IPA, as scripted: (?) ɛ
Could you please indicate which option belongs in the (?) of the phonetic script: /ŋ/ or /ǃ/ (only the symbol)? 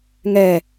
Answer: ŋ